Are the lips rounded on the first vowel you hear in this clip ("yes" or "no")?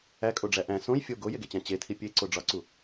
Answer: no